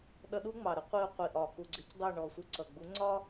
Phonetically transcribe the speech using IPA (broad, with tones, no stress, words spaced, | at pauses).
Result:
ɗʌ˧ɗu˦ŋ͡mɑ˨ɾə˦ qʷi˧ʊ̯qʷi˨ʔɒ˨ ku˨ɡ͡ǀɪ˨˦c dˤɜ˦˨ɳɔ˨sʷi˧ ǀʌ˨ ɡ͡bu˨˦ŋ͡ǀɒ˦